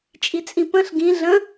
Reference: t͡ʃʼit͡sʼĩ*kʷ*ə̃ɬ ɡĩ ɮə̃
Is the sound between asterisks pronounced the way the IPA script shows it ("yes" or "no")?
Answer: no